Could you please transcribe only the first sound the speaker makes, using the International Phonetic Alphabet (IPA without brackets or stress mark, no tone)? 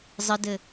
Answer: zˤ